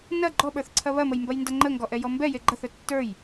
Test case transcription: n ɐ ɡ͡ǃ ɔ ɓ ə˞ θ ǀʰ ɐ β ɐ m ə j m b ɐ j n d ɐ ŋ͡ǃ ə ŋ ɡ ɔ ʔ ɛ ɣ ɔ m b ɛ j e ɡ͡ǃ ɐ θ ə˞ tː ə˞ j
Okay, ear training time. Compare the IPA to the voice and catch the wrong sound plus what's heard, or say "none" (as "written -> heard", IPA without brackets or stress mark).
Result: ɣ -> j